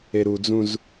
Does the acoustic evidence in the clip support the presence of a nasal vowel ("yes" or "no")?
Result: yes